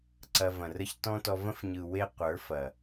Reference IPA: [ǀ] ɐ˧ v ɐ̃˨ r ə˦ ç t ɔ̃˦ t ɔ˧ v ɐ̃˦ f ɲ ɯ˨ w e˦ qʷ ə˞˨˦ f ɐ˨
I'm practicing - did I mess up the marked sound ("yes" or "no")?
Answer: no